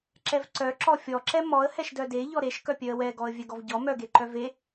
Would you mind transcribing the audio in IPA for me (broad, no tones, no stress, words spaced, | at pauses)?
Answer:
ǁɛvǀœ ǁɔfʲɔǁɛ mɔə̯hɛʃ dœde ʎɔɾeʃkœpʲœə̯ wɛɡɔə̯ vʲɛɡɔvɟɔ mœɡe ǃœve